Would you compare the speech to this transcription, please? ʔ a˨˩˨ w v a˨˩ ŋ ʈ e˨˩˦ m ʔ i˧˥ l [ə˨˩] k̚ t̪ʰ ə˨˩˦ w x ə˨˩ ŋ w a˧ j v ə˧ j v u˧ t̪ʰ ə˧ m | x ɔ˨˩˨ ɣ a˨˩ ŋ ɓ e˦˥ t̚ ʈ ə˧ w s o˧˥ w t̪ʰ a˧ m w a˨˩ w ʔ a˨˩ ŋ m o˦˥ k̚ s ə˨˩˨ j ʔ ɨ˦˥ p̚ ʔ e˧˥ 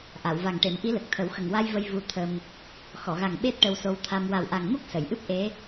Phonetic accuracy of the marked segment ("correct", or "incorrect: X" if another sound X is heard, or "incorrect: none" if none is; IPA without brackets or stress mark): correct